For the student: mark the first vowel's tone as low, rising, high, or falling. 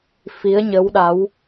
rising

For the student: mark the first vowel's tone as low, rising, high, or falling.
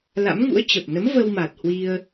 rising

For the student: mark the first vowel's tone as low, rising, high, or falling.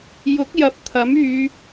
rising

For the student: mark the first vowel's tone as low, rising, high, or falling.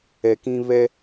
low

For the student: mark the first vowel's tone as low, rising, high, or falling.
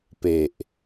low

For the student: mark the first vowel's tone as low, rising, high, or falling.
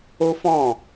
high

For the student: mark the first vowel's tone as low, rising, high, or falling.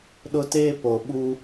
high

